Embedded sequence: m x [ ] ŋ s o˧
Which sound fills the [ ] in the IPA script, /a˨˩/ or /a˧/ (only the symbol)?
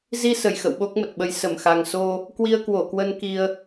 a˨˩